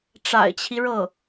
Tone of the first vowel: low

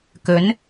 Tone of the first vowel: rising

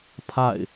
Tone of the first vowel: falling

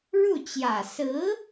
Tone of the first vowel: falling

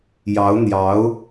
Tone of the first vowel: rising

